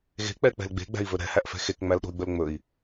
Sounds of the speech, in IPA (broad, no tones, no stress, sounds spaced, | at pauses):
ɣ e̤ k͡p ɛ k͡p ɛ̤ l ɡ͡b e̤ ɡ͡b æ̤ i̯ v ɵ ɾ ɛ̤ h æ ʔ f ɛ̤ x e k ŋ͡m æ l ɗ o̤ y̯ ɡ͡b ɵ l ŋ͡m ɵ i̯